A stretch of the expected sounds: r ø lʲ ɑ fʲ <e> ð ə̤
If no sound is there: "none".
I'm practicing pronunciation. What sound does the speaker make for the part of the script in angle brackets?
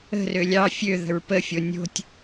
ø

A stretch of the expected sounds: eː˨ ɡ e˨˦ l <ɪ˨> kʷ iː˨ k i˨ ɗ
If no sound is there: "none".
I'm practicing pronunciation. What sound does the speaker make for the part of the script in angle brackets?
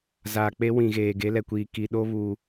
ɛ˨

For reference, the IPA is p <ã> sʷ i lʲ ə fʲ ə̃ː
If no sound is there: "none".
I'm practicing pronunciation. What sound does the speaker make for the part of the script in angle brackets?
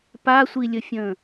a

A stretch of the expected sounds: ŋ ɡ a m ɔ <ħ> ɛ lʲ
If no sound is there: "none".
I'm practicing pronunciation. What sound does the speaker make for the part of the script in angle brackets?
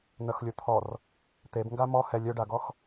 h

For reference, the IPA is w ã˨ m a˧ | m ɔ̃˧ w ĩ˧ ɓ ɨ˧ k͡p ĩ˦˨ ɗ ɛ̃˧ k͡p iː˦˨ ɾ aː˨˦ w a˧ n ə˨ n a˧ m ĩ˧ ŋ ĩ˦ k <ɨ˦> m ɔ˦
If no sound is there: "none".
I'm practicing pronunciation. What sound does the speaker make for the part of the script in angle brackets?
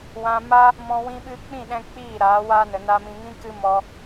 ɨ˦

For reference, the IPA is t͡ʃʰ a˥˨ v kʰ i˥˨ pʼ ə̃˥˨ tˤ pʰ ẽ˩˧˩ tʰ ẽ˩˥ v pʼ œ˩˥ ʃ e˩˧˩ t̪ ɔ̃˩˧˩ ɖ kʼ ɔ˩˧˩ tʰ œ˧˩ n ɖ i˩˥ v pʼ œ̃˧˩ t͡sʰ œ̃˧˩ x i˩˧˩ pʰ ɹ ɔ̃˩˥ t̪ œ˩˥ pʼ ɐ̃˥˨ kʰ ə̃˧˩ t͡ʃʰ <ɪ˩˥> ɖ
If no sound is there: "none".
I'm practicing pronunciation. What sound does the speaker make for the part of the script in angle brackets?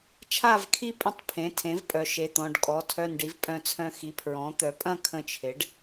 ɪ˩˥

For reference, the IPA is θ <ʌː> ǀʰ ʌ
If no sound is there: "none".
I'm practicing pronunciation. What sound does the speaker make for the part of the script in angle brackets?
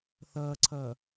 ʌː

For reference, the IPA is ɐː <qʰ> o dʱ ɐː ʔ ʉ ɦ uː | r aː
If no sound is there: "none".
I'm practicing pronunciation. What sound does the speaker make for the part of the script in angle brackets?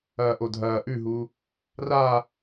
ʔ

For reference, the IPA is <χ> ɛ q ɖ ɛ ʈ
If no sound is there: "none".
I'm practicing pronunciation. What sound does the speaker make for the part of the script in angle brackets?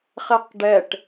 χ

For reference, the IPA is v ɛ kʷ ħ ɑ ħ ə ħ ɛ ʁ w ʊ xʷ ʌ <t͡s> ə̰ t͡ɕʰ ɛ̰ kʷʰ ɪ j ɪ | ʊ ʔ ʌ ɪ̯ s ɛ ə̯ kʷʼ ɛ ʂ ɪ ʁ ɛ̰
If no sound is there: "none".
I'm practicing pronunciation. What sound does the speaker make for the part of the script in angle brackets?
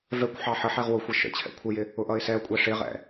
ʃ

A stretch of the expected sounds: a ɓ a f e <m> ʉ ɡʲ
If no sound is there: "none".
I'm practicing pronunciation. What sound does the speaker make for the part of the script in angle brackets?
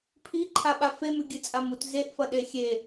m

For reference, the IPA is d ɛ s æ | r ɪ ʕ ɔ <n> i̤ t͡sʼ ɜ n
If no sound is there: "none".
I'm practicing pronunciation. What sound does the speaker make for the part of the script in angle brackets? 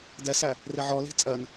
l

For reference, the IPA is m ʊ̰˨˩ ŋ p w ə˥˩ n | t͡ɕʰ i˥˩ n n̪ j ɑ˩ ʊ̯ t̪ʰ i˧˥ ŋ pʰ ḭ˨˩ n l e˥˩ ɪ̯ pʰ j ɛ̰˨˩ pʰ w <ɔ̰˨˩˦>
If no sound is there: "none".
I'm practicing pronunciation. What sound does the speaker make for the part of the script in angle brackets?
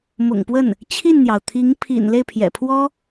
ɔ˥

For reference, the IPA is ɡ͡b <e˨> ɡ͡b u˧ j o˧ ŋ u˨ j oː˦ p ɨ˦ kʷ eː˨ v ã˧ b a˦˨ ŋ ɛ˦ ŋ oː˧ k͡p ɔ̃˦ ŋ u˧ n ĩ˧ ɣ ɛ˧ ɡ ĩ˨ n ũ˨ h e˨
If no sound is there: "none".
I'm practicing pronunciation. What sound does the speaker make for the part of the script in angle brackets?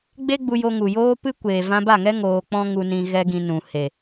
e˦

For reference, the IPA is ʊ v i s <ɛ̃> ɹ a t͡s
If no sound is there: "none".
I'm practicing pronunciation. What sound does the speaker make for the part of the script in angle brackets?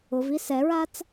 ɛ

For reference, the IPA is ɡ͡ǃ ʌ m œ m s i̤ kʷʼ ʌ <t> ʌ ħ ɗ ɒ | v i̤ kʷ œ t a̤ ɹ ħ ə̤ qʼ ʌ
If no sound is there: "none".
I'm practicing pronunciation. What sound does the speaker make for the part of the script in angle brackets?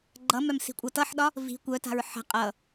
t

